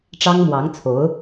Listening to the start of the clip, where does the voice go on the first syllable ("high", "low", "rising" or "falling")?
high